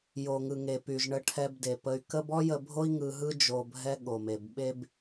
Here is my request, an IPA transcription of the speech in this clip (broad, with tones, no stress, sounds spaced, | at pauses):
j o˩ ŋ ɯ˩ ŋ e˩ p y˩ ʒ ɳ ə˧ ʈʰ ɛ˧ b d e˩ p ə˧ y̯ k ə˥ b ɔ˥ j ə˧ bʱ o˥ i̯ ŋ ɯ˧ ɦ ɯ˥ d͡ʒ o˧ bʱ ɛ˥ ɠ o˩ m e˩ b ɓ e˥ b